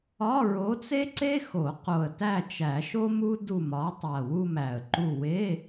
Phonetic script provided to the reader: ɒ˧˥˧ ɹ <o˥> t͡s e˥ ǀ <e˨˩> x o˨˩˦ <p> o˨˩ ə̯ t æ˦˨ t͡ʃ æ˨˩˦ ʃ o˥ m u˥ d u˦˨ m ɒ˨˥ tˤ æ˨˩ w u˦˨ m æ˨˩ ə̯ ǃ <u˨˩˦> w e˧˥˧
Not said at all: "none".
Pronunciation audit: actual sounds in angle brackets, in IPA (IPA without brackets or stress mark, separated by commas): o˨˥, e˥, q, u˦˨